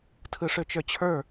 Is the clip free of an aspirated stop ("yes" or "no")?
no